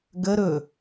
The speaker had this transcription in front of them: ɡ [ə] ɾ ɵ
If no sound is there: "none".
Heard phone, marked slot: ə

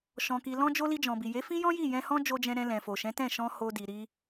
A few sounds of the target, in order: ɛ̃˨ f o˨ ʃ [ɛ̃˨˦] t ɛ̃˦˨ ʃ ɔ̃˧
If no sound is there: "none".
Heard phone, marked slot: ɛ̃˨˦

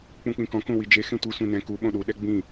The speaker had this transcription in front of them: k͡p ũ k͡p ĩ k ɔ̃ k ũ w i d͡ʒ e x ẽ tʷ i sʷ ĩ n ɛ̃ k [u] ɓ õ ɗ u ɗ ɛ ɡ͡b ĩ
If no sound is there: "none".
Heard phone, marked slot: u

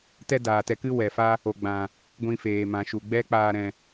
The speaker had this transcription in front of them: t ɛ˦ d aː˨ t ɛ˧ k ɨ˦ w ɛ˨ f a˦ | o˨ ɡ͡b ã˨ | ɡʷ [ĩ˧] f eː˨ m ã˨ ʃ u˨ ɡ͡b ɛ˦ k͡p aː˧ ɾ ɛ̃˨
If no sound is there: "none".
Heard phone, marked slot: ĩ˧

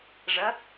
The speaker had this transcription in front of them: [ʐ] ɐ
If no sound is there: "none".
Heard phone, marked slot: ʐ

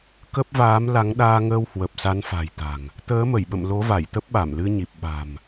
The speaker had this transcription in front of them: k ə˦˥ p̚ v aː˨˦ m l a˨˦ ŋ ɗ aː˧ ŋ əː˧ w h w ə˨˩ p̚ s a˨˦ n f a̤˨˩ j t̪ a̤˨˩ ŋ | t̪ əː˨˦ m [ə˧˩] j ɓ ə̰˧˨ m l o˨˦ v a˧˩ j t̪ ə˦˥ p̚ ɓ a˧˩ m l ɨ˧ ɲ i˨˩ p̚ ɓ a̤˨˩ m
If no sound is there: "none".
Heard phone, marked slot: ə˧˩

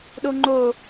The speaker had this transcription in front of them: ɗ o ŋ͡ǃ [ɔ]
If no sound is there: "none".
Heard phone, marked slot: o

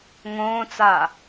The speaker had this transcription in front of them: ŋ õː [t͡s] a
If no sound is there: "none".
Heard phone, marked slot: t͡s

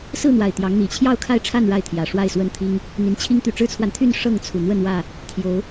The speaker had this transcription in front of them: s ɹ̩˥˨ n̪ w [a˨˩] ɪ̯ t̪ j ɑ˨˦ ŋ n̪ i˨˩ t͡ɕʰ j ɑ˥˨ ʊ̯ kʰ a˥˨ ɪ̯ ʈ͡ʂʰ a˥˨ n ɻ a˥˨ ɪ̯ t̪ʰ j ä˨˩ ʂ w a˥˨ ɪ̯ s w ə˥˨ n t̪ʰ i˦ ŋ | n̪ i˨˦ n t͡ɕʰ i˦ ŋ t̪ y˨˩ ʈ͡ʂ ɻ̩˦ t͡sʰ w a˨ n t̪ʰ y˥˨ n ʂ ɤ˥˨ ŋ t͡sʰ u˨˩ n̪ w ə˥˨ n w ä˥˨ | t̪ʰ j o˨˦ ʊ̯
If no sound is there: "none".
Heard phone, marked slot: a˨˩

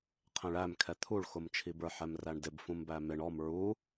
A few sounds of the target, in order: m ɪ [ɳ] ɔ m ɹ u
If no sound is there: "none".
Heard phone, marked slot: ɳ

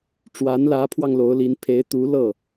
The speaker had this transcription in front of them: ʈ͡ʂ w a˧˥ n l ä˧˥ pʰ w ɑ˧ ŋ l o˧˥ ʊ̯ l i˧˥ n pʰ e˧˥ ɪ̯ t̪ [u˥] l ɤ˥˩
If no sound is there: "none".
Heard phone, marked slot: u˧˥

